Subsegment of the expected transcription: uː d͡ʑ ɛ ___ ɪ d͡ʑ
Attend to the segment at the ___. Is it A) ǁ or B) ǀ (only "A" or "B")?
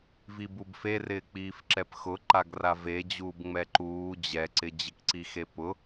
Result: B